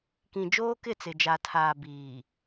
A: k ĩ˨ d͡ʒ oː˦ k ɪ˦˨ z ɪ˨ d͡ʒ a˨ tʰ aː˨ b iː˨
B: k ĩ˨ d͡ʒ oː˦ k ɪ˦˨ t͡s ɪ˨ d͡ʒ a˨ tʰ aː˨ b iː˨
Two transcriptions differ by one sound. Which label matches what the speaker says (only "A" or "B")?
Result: B